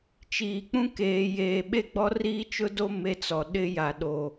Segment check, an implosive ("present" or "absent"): present